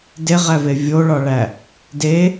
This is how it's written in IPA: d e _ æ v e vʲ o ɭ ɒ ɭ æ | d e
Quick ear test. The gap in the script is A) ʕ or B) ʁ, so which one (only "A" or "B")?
B